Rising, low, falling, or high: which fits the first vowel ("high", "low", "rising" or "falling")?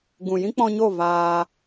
low